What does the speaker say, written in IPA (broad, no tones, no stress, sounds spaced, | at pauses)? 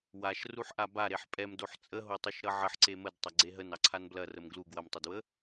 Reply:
w a ʃ r u ħ ʔ a b a ɾ e ħ pʼ ɛ m d o ħ t͡sʼ ə ɦ o tˤ u ʃ ɾ ʌ ʕ ə ħ ǀ e m ə d tˤ ɐ ɡ͡ǀ e ɦ ə n ɑ ǀʰ a n b l ɐ r ə m ɡ l u ɡ w ɐ m tˤ o d w ə